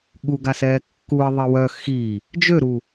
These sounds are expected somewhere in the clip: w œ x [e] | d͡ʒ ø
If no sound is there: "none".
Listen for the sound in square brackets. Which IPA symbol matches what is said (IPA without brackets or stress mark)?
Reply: i